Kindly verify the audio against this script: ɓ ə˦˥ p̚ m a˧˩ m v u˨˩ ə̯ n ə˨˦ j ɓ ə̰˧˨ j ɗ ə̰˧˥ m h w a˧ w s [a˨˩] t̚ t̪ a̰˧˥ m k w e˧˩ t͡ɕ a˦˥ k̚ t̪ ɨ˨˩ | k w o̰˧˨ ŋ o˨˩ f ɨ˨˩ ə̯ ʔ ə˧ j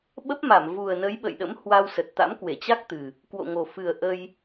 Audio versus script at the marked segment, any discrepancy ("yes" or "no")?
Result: yes